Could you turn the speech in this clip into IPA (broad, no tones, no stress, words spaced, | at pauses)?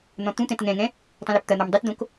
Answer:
n̪ɔ̃t̪ũt̪ɛ̃t ŋɛ̃ŋɛ̃ | tˤũløpt̪ɐn̪ɔm dˤɪtd̪õk